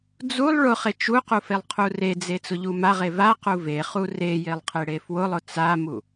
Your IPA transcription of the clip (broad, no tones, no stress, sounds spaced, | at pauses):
d͡z u lˠ ɭ ʊ χ e t͡ʃ u q u f e lˠ qʰ u r e d͡z e t͡s ʊ ʎ u m a ʁ e v a q u v e χ u r e j e lˠ qʰ e ɽ e f w ʊ lˠ ʊ t͡s a m u